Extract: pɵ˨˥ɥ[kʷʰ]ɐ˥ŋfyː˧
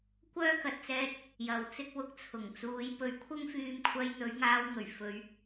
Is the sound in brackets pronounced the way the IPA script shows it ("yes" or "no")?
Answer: yes